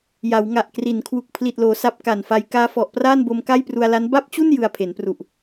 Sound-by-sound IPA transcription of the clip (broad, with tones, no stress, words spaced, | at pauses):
ja˩˦wŋa˨˩ʔkri˩˦nkʰwu˨˩k̚ pʰli˨˩t̚loː˩˦ sa˦˥p̚ka˨˩nfa˧j kaː˧fɔ˨˩ʔ praː˥˩nbo˧m ka˥˩jpru˧a̯la˦˥n ba˥˩p̚t͡ɕu˥˩n jɯ˧a̯pʰe˩˦npru˨˩ʔ